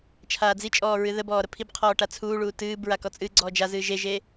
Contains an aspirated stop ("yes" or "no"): yes